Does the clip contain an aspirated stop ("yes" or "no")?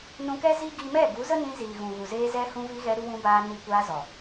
no